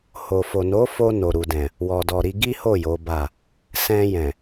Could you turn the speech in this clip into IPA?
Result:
h o˨ f o˨ n o˨˦ f o˧ n o˨ ɾ u˨ d ɛ̃˨ | w ɔ˨ d ɔ˨ ɾ i˧ ɡ i˦ h o˦˨ j o˨˦ b a˦˨ | s ɛ̃˧ j ɛ̃˨

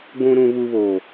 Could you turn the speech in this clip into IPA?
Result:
ɡʷ ũ˨ ɾ ũ˨ β u˨ β oː˨

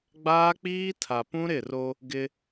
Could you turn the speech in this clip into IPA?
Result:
ɡ͡b aː˦ k͡p iː˦ tʰ a˨ p ũ˦ ɾ ɪ˦˨ r o˦ | ɡ ɪ˦

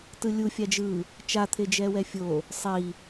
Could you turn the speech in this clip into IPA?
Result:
t ɯ lʲ u fʲ a d͡ʒ ɯ | t͡ʃ a t̪ʰ e d͡ʒ ɛ w ɛ fʲ o | sˤ i

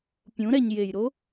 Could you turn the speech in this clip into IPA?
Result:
pʲ ũ ɾ ɛ ɲ j e j ɾ o

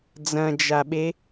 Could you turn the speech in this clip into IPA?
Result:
d͡z ɐ̃ d͡ʒ a ɓ e

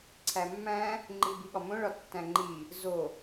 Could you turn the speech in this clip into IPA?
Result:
ǀʰ æ mː æ̃ | ŋ͡ǃ i b i ɠ ɒ m õ ɭ ɒ tː æ̃ ŋ͡ǃ i | z o

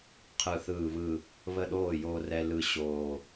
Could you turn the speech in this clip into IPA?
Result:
qʰ ɯ˨˩ θ ɯː˨˩ β ɯ˨˩ | β ə˥˩ ɗ oː˥˩ j oː˧ r ɛ˧ l ɯ˨˩ ɕ oː˨˩

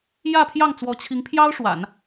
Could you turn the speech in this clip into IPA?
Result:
j ä˥˧ pʰ j ɑ˥˩ ŋ t͡s w ɔ˧˥ t͡ɕʰ i˧˥ ŋ pʰ j ɑ˥ ʊ̯ ʂ w a̰˨˩˦ n

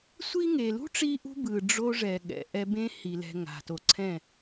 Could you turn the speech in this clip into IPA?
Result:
sʷ i˦ ŋ e˨ l ṳ˦ ʈ͡ʂ i˧ ʔ ṳ˧ b ɯ˨ ɖ͡ʐ o˧ ʐ ɛ˨ ɠ ɛ̰˨ ʔ ɛ˧ b ẽ˦ h i˨ l ɛ̤˧ ŋ a̤˨ t o˨ ǀʰ ɛ̃˦˨

